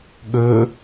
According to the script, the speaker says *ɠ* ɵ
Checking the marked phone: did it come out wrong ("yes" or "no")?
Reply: no